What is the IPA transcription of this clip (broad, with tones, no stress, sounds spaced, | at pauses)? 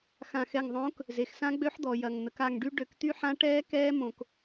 x ã˧˩ x ɛ˧˩ ŋ ðˤ õː˨˥ k | z e˩ x s ã˦˥ ɡ͡b ø˦˥ ħ d̪ ɔ˩ j ɐ˩ ŋ n̪ ə˩ k a˧˩ ŋ ɖ y˦˥ ɖ ø˧˩˧ k t̪ y˦˥ ħ ã˦˥ ʈ ɛː˦˥ k ɛː˦˥ m õ˧˩˧ k